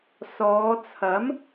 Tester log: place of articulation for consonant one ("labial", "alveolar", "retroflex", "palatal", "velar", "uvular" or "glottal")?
alveolar